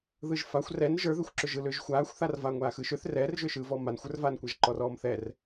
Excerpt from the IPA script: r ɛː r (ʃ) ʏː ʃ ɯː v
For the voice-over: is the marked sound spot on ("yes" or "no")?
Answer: no